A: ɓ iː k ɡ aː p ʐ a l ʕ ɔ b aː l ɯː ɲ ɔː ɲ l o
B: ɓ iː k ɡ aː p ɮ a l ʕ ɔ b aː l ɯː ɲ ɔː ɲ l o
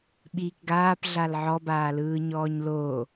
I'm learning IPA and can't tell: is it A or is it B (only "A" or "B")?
B